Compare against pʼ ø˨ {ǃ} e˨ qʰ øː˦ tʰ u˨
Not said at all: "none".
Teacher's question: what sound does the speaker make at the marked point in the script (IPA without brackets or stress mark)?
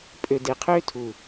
d